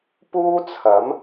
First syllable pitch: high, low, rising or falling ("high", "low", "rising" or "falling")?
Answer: high